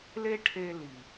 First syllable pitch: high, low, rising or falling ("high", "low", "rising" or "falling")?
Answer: high